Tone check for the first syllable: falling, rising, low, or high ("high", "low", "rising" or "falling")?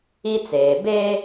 high